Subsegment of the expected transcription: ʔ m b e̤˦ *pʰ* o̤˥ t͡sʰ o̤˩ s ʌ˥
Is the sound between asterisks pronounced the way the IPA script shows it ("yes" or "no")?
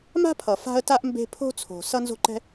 yes